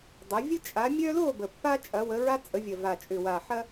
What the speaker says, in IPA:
dˤ ə˩˧ vʲ ə˦ t͡ʃʼ a˩˧ mʲ œ˦ l o˥˨ b ə˨˩ pː a˦ t͡ʃʼ ɐ˩˧ w ə˩˧ ɹ a˦ t͡sʼ ə˩˧ vʲ ɐ˨˩ v a˨˩ t͡ʃʼ ʏ˨˩ w a˨˩ ħ ɐ˦

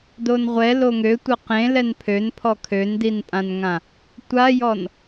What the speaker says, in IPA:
d o n ʁʷ ɛ l o ŋ ø tʷ ə q ẽ l ɛ n pʰ ø n pʰ ɔ kʰ ø n d i n pʼ ã n ŋ ã | tʷ a j ɔ n

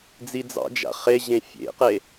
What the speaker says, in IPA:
d͡z i d͡z ɑ̰ d͡ʒ a̰ χ e ʑ ẽ fʲ ḛ q e

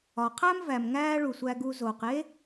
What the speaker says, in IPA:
ɒ˩ qʰ æ˥ m v æ˩ m ŋ æː˥ ɭ u˩ sʷ æ˧ ɡ u˧ z oː˩ q e˥

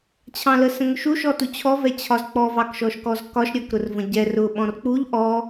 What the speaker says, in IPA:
t͡ɕʰ ɑ̃ l ə s ə̃ ŋ ʊ ʃ u ʃ ɔ t u t͡ɕʰ ɔ v ɛ t͡ɕʰ ɒ z k͡p ɔ v ɑ k ʃ ɔ ʃ k ɔ z k ɒ ʃ ɾʲ ɒ k ɾ ʊ r v ə̃ ɟ ɛ r ʊ ɓ ɔ̃ r k͡p u ʎ ʔ ɔ

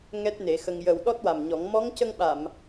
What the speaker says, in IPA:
ŋ ɛ˦˥ t̚ n e˨˩˦ x ə˧ ŋ j ə˨˩ w ɗ ɔ˦˥ t̚ w a˨˩ m ɲ ɔ˨˩˦ ŋ m ɔ˧˥ ŋ c ə˧ ŋ ɓ a˨˩˨ m

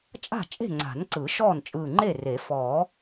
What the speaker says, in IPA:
t͡ʃʼ a̤˥˩ t͡ʃʼ e̤˥˩ ŋ͡ǀ a̤˨˩˦ n ǀ ɯ˨˩˦ ʃ ɔː˥˩ n t͡ʃʼ ɯː˧˩ ŋ͡ǃ e˥˩ r e˨˩˦ f ɔː˨˩˦

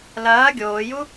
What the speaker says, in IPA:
l ɐː ɡʲ oː j u

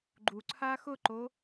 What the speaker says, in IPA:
ɡ͡ǃ u ǀʰ a x ʊ ǃ o

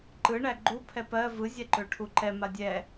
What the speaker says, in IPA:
ǃ ɯ ɳ æ ɡ͡ǃ u pʰ ɛ p ɜ v ɯ zʲ ɛ ǃ ø ʈʰ u ǃ ɛ m a dʲ ɛ

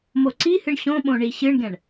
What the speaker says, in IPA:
m o ǀ i h ɨ ɳ ɕ õ ɓ õ ɳ i ɕ ɨ ɳ ɡ ɛ̃ ɳ

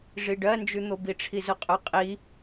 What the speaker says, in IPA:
ʐ i ɖ ɜ n d͡ʒ ʉ n̪ o b i ʈ͡ʂʰ i z ʊ qʼ ʊ qʼ i

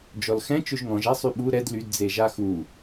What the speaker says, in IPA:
d͡ʒ ɔ l x ɛ̃ t͡ʃ ø ʒ ŋ ɔ̃ ʒ ɛ sˤ y ɓ u ɾ ɛ d l y d d͡z e ʒ a x u

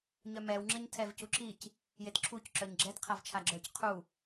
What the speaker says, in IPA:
ɲ œ m ɛ w ŋ͡ǁ ə ɲ tʰ ɛ v c u ǁ i c | j e t ǁʰ u c ǁ œ ɲ ɡ͡ǁ ɛ t qʰ a v t͡ʃʰ a ɡ͡ǁ œ c qʰ u

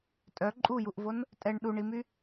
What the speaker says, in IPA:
tʼ œ ǃʼ u j u ʔ v o n | tʼ ɛ ɳ ɗ u ɳ i m y

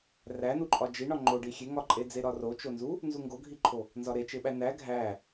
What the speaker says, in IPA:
r æ n u ǃʼ ɒ d͡ʒ i ɳ ɒ ŋ͡ǃ o ɖ i xʲ e ŋ ɒ ǃʼ e d͡z e ɾ ɒ r o t͡ʃ o n z u | n z u ŋ ɡ o ɡʱ i ǃʰ o | n z ɒ ɾ e t͡ʃ e ɓ æ n æ ɡʱ æ

